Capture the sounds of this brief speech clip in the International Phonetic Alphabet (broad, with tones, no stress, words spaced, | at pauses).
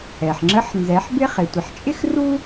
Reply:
ɛ˩ħ ŋ͡ǁə˧˥ħnzɛ˩˧ħbɪ˥ χɪ˩˧tʷɪ˩˧ħ t͡ʃʼɪ˥xru˥